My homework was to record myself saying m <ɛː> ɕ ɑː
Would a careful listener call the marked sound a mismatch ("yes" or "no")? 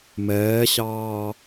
no